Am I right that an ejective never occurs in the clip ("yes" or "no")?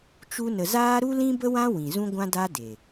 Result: yes